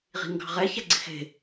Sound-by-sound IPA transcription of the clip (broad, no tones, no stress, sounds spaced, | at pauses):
ʁ i̤ ŋ ɡ ɑ̤ ʁ ɛ ç ɛ ɡ͡ǀ ɪ x e̤